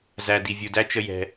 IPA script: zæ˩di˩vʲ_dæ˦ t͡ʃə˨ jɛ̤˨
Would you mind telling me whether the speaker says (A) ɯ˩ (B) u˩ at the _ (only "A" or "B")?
B